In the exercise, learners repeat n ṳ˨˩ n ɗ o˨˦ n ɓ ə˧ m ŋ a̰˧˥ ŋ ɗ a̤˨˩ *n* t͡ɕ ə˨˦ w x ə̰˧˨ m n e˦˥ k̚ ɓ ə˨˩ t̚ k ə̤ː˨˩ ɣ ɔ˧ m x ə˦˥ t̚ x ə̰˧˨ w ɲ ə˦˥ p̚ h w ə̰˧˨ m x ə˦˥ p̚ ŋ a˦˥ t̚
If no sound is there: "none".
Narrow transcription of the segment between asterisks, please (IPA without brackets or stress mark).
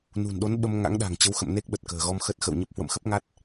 ŋ